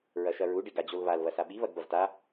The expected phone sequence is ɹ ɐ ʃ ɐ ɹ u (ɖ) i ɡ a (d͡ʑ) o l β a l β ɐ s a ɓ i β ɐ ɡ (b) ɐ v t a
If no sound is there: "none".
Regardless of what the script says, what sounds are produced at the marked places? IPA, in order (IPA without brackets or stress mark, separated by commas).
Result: ɖ, d͡ʑ, b